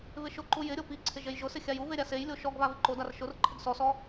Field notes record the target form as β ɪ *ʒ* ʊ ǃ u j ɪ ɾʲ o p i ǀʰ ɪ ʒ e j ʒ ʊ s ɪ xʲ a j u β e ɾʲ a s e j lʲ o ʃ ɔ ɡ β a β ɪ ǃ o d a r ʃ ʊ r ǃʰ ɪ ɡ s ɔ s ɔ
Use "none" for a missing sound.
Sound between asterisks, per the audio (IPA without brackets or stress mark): ʃ